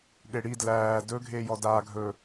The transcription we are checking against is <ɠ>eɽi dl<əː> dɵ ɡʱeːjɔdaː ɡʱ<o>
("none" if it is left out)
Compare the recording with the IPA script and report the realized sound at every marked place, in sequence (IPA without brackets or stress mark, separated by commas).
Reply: ɠ, æː, ɵ